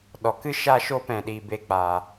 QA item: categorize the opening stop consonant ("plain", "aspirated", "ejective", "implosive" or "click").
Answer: implosive